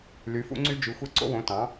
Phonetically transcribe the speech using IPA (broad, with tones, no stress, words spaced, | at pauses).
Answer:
ly˨˦fṵ˦ŋ͡ǀy˦ d͡ʒy˨˦xʷe˦ ǀo̰˦wõ˨˦tɑ̃˨˦